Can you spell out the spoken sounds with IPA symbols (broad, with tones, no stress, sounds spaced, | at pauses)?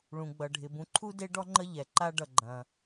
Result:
ɭ ũ˩ ɡ͡b ʌ˩ ɖʱ ɪ˩ b ũ˨ ǃʰ u˥ d e˦ ɖ ɔ˦ ŋ͡ǃ ə˦ ʎ ɛ˩ ǃ a˦ ɖ ʌ˨ ɡ͡ǃ ɐ̃˩